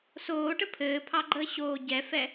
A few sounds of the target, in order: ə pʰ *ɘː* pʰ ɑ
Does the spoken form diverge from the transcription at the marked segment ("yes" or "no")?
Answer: no